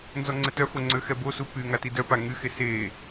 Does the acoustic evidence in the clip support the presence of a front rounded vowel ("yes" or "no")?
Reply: yes